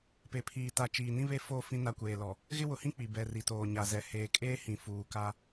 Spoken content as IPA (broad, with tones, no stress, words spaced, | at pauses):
pe˨pʰiː˨ta˨ t͡ʃiː˨nĩ˦βe˦˨ fo˦˨ fĩ˦na˦kʷeː˨ lɔ˨ | ɣɪ˦wʊ˨hĩ˦ k͡pi˨bɛ˨ri˨ toː˨ɲa˨zɛ˨ heː˨kʼeː˦hĩ˨ fuː˨ka˦